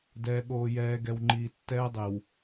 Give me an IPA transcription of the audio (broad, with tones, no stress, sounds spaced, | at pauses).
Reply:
d ɛː˨ ɠ oː˨ j ɛː˨ ɡ ɛ˨ w ŋ͡ǃ iː˨ tː ɛː˦ dˤ e˨ w